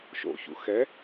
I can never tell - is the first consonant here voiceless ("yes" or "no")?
yes